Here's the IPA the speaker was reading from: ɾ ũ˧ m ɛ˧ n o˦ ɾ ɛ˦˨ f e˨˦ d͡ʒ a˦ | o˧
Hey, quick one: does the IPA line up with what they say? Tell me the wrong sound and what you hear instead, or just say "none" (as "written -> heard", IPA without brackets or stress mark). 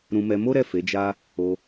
n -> m